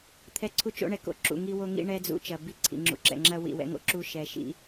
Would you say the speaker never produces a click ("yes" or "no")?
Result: no